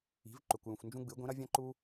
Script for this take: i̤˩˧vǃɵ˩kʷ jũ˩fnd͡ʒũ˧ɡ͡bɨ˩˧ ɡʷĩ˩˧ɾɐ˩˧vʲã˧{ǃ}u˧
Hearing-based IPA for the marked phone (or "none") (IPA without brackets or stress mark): ǃ